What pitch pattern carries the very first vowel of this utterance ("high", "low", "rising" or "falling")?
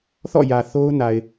falling